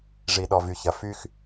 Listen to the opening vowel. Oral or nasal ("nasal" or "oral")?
oral